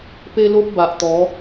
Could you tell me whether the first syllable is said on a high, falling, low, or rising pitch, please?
high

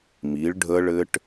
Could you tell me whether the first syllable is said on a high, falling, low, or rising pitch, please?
rising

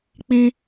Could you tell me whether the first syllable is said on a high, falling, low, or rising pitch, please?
high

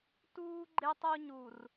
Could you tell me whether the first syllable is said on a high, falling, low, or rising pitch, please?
high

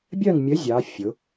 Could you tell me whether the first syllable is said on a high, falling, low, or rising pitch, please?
falling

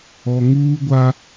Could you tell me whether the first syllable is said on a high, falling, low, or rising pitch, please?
low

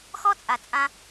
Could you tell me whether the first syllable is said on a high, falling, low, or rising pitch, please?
high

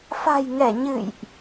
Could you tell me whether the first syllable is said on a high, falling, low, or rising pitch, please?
low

